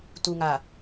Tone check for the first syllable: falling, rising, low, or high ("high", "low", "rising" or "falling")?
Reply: low